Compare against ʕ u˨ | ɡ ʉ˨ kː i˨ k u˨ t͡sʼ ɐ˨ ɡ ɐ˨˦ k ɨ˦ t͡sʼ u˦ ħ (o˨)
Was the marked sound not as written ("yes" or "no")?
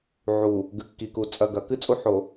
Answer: no